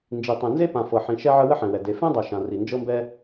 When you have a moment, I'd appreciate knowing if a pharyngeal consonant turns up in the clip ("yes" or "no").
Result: yes